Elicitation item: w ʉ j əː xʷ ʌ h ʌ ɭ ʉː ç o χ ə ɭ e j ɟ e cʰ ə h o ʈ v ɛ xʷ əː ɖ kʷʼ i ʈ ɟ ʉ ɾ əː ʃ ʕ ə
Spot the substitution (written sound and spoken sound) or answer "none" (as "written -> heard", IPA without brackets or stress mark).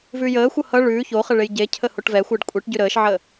w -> v